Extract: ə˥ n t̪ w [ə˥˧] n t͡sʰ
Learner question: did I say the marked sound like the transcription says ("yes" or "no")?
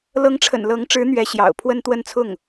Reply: yes